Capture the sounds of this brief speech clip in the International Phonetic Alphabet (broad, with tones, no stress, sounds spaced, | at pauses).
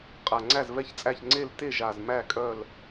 qʼ a˨˩ ŋ͡ǀ æ˥˨ z v ɛ˥˨ ç t͡sʼ æ˥˨ ç ŋ͡ǀ e˥˨ l t e˥˨ ʒ a˨˩ z m æ˥˨ kʼ œ˥˨ l